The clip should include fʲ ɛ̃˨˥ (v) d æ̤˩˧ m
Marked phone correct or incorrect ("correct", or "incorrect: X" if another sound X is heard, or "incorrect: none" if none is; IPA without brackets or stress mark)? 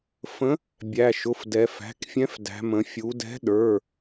incorrect: f